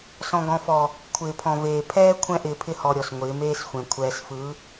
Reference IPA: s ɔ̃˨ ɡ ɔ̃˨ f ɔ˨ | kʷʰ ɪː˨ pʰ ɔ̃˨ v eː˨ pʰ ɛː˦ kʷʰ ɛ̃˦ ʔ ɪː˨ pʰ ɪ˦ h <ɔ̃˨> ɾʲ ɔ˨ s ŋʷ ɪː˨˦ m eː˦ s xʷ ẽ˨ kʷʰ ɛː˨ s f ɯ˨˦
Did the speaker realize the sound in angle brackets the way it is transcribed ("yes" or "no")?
no